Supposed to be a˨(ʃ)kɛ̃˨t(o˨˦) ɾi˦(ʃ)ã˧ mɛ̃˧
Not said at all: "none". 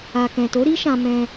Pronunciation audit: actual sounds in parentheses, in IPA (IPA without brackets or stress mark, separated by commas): none, o˨˦, ʃ